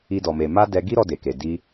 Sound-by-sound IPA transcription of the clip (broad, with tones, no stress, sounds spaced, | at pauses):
i˧ d ɔ˨ m e˨ m a˧ d ɛ˧ ɡ i˦ ɾ ɔ˧ d e˨ k e˨ d i˧